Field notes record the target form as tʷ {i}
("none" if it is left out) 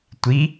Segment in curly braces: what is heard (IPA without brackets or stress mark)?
i